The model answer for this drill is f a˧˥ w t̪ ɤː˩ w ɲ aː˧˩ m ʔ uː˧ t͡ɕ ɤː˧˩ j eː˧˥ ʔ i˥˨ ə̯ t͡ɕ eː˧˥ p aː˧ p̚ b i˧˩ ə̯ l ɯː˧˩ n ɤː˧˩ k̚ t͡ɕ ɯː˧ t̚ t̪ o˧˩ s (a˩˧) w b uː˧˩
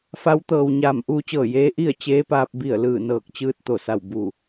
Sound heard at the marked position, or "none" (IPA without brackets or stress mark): a˧˩